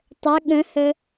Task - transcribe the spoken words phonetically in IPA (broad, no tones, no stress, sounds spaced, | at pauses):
tˤ ə ɠ ə̃ h ə